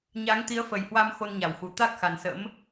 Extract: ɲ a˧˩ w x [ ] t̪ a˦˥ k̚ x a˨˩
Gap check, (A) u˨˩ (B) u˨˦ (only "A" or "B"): A